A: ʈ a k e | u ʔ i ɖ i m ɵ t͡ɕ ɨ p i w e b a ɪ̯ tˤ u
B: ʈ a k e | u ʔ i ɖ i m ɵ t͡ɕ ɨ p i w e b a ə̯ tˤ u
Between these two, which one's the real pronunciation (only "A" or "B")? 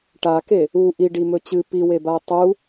B